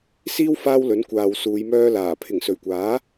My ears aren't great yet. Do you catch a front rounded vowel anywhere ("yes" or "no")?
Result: yes